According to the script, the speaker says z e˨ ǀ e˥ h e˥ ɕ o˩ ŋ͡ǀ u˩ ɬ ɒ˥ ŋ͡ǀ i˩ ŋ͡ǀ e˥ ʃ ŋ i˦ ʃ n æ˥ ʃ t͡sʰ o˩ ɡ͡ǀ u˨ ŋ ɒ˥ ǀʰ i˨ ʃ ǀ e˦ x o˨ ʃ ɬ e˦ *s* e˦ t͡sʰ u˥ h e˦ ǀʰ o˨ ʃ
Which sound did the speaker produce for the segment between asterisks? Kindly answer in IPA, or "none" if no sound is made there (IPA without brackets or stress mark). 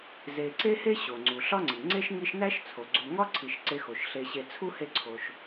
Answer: ɕ